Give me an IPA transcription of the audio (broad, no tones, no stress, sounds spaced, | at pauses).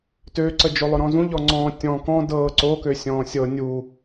t ø ǀ ə d͡ʒ o lˠ ʊ ɾ ɔ̃ z ũ ʎ ɔ ŋ͡ǀ ɔ̃ː tʲ ɔ̃ k ɔ̃ d ɤː ǀ o k ø sʲ ɔ̃ː sʲ ɤ nʲ u